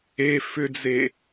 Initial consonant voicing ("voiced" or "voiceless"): voiceless